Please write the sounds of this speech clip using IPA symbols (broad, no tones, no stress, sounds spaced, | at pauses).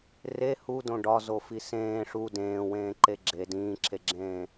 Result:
r e h u d õ ɖ ɒ z o f i s ẽː ʂ u d ẽː w ẽː ǃ e ɡ͡ǁ e d ĩː ǁʰ e ɡ͡ǁ ẽː